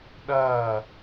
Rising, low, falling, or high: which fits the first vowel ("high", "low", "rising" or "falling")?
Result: falling